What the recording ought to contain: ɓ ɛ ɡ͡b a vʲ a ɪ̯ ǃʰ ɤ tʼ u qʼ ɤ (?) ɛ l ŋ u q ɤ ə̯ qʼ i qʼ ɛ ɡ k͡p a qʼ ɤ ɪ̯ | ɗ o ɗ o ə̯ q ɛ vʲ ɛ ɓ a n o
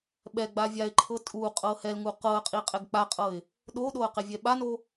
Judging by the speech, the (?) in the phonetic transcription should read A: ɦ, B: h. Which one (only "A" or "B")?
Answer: B